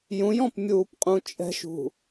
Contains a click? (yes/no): no